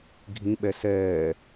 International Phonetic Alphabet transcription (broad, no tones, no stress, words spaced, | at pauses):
ɡʱĩɓɛ sɛː